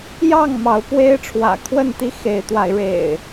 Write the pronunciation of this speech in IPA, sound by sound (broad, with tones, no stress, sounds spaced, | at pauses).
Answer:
j ɑ˥˨ ŋ m ɑ˨˦ ʊ̯ p w e˦ ɪ̯ ʈ͡ʂʰ w ä̰˨˩ kʰ w ə˥˨ n t̪ i˦ x e˨˦ ɪ̯ t̪ w a˨˦ ɪ̯ ɻ ḛ˨˩ ɪ̯